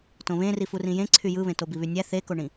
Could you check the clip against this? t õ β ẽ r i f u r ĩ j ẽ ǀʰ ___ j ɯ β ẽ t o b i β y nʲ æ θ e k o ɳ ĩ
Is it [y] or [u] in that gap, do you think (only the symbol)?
y